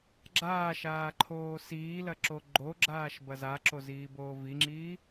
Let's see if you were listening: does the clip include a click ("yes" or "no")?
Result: yes